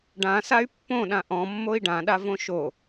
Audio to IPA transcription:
ɖãsay̯ pːõɗã ʔɔ̃mːoi̯ ɖãɗavõ ʃo

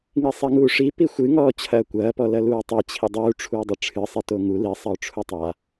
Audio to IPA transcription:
ŋisˤiŋuːʂi pixʷɨŋɔː t͡ɕʰɐːkʷɐːpɔ lɐluːtˤi t͡ɕʰidˤuːʈ͡ʂʰuː dˤɐʈ͡ʂʰɨ sˤitoŋu lisˤɐʊ̯ ʈ͡ʂʰutˤa

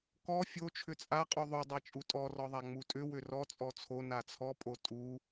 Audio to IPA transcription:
kɔ fʲo t͡ʃʰʏt͡sʼa qʼuðˤu dˤat͡ʃʼutʼɔ rɔðˤaŋ͡mutʼʏ wʏrɔ t͡sʼɔt͡sʰo nat͡sʰɔ pʼotʼu

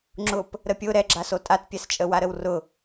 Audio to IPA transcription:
ŋ͡ǁʊp | ɾəpʲʊ ɾɛɡ͡ǁas otʼatpʲɛst͡ʃʼə waɾəwrʊ

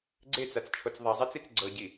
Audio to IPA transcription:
ɡ͡ǀet͡sat͡st͡ʃʰot͡s ðˤazˤat͡sit͡s ɡ͡ǀɤɟi

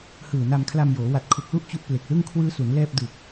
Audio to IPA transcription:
hɯː˨˩na˧mkʰla˧mjoː˩˦ wa˨˩t̚kʰu˨˩k̚lu˥˩ʔ t͡ɕu˦˥ʔple˨˩k̚lɯ˥˩ŋ kʰwɯː˦˥su˩˦n lɛː˥˩p̚ dɯ˨˩k̚

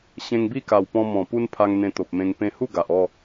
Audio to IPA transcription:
ɕẽ˧ŋbi˥˧ka˨˩w pɔ̃˧ mɔ̃˨˩pu˦npʰa˧ŋ n̪ẽ˧t̪o˨p̚mẽ˧ŋ pẽ˧hu˥˧ ɡa˨ʔɔ˥˧

